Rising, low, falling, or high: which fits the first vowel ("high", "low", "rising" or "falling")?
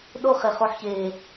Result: high